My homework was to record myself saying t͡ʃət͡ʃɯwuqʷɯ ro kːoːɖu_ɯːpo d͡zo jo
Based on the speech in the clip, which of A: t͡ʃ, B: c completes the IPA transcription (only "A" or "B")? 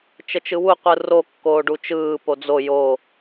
A